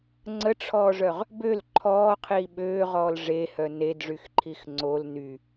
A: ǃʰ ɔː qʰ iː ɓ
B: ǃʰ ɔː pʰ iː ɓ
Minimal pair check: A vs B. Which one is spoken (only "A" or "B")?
A